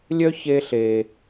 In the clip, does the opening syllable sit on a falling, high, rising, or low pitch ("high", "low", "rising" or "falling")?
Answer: high